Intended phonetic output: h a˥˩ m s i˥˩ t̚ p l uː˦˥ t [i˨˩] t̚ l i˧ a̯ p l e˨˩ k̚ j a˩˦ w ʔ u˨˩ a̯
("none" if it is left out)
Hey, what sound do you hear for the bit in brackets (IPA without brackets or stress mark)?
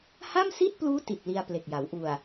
i˨˩